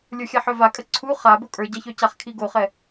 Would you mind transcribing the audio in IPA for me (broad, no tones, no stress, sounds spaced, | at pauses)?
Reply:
lʲ ə˞ xʲ a ħ œ v a kʼ ə ǀʰ u χ a b o kʼ ə˞ ɟ a ç œ c a χ kʰ i ɡ o χ ɛ